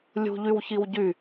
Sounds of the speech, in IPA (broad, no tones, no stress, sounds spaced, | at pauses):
lʲ ṳ ʎ y w ç i w ɟ y